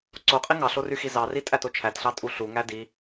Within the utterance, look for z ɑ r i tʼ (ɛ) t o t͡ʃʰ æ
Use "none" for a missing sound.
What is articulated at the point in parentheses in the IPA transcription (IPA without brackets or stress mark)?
æ